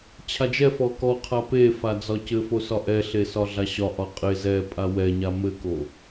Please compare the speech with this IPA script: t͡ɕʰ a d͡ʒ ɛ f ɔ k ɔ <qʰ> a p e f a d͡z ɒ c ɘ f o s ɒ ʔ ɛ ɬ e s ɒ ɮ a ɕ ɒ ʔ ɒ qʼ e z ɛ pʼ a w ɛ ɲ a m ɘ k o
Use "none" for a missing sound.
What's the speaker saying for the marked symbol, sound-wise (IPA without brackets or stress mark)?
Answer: qʰ